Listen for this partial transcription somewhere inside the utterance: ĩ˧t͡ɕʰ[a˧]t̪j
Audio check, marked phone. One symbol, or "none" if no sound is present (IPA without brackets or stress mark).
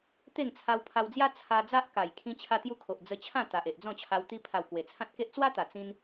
a˧